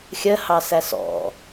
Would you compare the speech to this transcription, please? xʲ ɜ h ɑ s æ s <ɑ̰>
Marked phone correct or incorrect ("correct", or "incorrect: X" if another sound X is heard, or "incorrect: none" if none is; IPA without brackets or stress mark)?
incorrect: ɔ̰